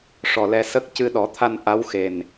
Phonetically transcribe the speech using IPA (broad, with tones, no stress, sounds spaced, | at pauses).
ʂ ɔ˨˩ l ɛ˧ s ə˦˥ k̚ c ɨ˧ ɗ ɔ˨˩˦ t̪ʰ a˧ n ʔ a˧˥ w x e˨˩ n